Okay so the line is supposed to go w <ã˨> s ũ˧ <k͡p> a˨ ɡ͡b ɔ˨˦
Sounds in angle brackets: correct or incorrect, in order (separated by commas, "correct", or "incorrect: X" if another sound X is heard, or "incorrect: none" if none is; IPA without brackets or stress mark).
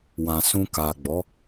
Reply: correct, incorrect: k